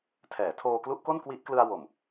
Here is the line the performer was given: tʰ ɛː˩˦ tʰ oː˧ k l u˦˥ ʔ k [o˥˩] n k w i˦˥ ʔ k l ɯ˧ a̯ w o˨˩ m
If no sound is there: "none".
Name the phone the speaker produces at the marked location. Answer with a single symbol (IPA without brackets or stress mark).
o˥˩